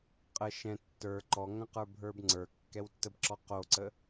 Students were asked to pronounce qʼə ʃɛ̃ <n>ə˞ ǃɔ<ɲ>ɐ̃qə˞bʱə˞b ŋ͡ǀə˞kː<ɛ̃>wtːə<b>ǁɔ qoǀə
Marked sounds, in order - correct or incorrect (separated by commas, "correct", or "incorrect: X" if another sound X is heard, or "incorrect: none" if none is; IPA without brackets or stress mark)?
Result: incorrect: tː, incorrect: ŋ, incorrect: ɛ, correct